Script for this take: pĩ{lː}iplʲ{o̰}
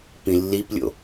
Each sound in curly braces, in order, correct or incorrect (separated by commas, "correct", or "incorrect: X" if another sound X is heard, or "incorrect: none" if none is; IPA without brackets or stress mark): correct, correct